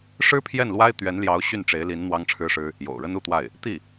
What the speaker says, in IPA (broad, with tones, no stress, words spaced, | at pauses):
ʂɻ̩˥pʰjɛ˥˩n lwa˥ɪ̯t̪ɥɛ˧˥nljɑ˧˥ʊ̯ ɕy˥˩n ʈ͡ʂe˧˥ɪ̯li˧˥n n̪wɑ˥ŋʈ͡ʂʰɻ̩˥ʂɻ̩˥ | jo̰˨˩ʊ̯ɻə˥nu˥˧t̪wa˥˩ɪ̯ | t̪i˥˩